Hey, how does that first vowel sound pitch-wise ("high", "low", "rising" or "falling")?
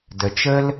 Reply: low